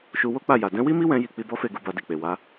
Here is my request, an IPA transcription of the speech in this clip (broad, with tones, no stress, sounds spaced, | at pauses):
ʃ u˧ w o˦ k͡p a˦˨ j a˨ d ɛ̃˨˦ w i˦ m i˦ w ɛ̃˧ j i˧ k͡p i˧ b ɔ˦ f e˦˨ ɡ u˨˦ b a˧ d i˨ k͡p e˨ w a˨˦